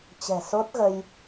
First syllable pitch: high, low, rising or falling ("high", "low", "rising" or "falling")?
low